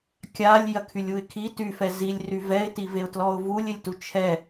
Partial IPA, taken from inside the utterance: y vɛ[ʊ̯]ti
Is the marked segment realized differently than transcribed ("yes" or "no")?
yes